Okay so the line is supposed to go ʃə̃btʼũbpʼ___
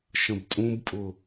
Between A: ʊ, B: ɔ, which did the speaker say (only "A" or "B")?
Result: A